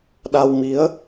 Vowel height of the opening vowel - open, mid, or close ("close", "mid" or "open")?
open